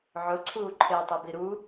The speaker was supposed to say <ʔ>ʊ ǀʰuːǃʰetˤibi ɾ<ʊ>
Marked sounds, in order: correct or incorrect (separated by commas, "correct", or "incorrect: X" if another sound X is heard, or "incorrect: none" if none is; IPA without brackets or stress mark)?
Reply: incorrect: ʕ, incorrect: u